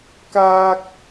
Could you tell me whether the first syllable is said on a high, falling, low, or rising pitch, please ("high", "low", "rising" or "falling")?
high